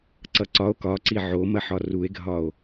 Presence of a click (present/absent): present